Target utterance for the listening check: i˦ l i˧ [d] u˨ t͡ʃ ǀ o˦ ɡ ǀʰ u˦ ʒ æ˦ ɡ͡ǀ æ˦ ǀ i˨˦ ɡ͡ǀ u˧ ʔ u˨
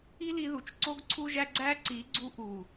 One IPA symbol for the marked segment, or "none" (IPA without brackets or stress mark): ð